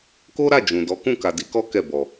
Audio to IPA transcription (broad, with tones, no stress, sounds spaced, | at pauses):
k o˦ ɾ a˦˨ d͡ʒ ũ˨ d ɔ˨˦ k ũ˦˨ k a˨ d i˨˦ k ɔ˦ k ɛ˦˨ b ɔ˨